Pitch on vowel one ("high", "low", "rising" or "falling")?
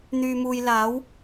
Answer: low